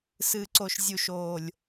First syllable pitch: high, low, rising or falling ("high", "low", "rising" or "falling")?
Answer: low